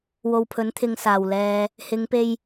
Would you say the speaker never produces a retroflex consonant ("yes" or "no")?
yes